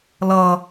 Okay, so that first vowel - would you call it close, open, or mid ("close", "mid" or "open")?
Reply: mid